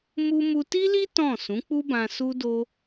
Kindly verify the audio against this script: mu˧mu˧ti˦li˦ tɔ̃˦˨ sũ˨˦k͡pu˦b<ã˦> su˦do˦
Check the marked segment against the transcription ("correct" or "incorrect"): incorrect